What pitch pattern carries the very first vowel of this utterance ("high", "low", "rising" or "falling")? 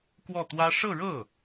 falling